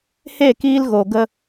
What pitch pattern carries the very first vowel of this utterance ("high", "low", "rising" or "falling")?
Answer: falling